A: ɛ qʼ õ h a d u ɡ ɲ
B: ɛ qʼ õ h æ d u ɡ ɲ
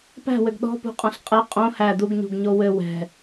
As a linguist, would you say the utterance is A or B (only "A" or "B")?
B